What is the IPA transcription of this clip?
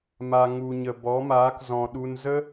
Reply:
m a˨ ŋ u˨ ɲ ə˨ b ɔ˨˦ m aː˨˦ k z ɔ̃˨ ɗ u˧ n z ə˦

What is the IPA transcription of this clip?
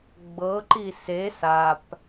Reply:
ɡ͡b ɤ ǃ i s e s a p

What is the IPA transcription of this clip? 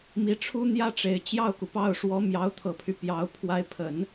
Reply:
m i˧˥ ʈ͡ʂʰ u˥ n̪ j ä˥ ʈ͡ʂ e˨˩ ɪ̯ t͡ɕ j ɑ˥˩ ʊ̯ k u˩ p ɑ˥˩ ʊ̯ ʂ w ɔ˧˥ m j ɑ˧˥ ʊ̯ t̪ʰ ɤ˨˩ pʰ y˦ p j ɑ˧˥ ʊ̯ pʰ w a˧˥ ɪ̯ pʰ ə˨˩˦ n

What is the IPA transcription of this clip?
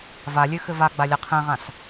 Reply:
v a lʲ ø x ɘ v a ɡ͡b a lʲ a qʰ ɛ̃ ʁ ã s

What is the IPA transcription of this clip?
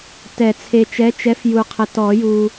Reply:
t ɛ˨˩˦ t͡sʰ e˨ t͡ʃ ɛ˨˥ t͡ʃ ɛ˨˥ f j u˨ qʰ ə˨ t ɔ˨˩˦ j u˨

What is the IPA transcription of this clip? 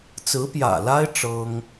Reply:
t͡s ɹ̩˧˥ p j ä̰˨˩ l a˥ ɪ̯ ʈ͡ʂ ɤ˥ ŋ

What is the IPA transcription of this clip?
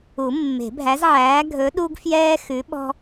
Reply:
u˨˩˦ mː e̤˨˩˦ bʱ æ˨˥ z ʕ æː˨˥ ɡʱ ɵ˨˥ ɗ u˦ ɡ f j ɛː˦ x ʉ˨˥ ɓ ɔ̤˦

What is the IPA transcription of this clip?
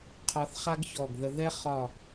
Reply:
qʰ ɒ˧ θ χ a˥ ɡ ç ɔ˧˩ ɡ ð ə˧ ð ɛ˥ χ ɒ˧˩

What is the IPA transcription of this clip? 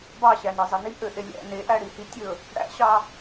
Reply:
b ɑ ɕ æ n e zˤ e n i ʔ ø ʔ e lʲ æ̰ n e ʔ æ ɽ i h i tʲ ɵ | ɽ æ̰ ɕ ɑ

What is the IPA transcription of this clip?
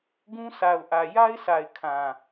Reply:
ɡ ũ˦ s a˨ ʊ̯ ʔ ä˨ j a˦ ɪ̯ s a˨ ɪ̯ kʰ ã˨

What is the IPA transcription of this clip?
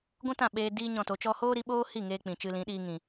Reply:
ɡʷ ũ˦ t ã˦˨ ɓ eː˧ d iː˦ ɲ ɔ̃˧ t o˨˦ t͡ʃ ɔ˧ h oː˦ ɾ i˧ ɓ oː˦ h i˦˨ ŋ eː˧ k͡p ĩ˨ t͡ʃ ɨ˧ l ĩ˨˦ ɗ iː˧ ŋ ĩ˨

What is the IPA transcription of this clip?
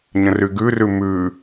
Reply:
ɲ ə̃ r y ɡ ʉ r ʉ m ʉ

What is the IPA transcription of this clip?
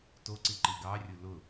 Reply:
t o ǀ i ǃ i ɡ ɑ rʲ ʊ l ʊ

